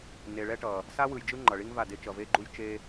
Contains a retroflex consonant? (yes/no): yes